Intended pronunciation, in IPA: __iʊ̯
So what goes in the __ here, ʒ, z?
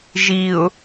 ʒ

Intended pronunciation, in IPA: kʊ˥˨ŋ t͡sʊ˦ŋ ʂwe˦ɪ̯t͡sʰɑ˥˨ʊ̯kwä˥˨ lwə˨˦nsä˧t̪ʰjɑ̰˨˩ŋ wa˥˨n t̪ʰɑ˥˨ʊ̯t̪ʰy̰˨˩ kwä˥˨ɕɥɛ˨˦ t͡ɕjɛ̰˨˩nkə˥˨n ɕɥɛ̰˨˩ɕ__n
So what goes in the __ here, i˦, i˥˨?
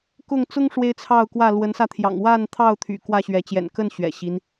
i˦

